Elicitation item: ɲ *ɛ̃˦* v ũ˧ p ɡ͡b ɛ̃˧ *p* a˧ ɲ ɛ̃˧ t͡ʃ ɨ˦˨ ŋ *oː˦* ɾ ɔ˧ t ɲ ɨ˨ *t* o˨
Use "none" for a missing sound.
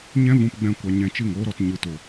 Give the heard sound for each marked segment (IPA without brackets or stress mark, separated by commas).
ɛ̃˦, kʷ, oː˦, t